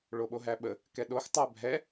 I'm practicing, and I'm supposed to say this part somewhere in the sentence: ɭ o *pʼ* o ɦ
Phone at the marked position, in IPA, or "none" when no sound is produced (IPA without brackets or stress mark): ɓ